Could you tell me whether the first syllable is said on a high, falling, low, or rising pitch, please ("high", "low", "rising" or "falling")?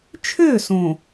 falling